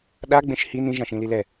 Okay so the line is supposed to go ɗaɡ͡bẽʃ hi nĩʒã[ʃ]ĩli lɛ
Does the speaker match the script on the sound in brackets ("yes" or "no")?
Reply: yes